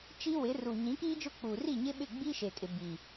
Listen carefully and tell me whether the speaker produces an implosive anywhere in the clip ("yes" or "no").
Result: yes